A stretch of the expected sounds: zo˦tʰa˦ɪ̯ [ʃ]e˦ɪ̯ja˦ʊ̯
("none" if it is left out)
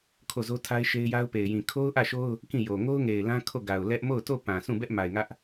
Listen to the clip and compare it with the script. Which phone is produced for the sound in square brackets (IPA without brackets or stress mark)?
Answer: ʃ